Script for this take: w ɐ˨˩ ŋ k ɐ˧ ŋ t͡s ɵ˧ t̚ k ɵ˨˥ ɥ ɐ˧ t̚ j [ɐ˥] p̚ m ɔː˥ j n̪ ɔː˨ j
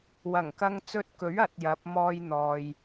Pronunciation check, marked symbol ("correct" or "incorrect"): incorrect